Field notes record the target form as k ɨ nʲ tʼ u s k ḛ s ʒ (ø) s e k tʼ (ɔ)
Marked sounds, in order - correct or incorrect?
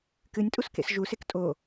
incorrect: u, incorrect: o

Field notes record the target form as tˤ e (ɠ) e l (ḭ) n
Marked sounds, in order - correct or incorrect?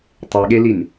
correct, incorrect: i

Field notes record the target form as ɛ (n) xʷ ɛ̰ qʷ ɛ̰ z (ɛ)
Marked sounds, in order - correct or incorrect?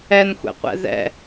correct, incorrect: ɛ̰

